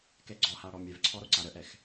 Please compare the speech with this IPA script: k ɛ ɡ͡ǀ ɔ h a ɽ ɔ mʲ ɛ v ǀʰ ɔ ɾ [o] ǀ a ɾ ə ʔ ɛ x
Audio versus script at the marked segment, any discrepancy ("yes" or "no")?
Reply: no